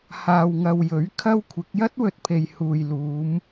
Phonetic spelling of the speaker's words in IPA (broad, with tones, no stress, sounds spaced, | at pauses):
h aː˨ w ŋ ɐ˨ w j ɵ˨˥ ɥ kʰ ɐ˥ w kʷʰ ɪ˨˥ k̚ j ɐ˥ t̚ w ɵ˨ t̚ pʰ e˨ j h uː˨ j l uː˨˧ m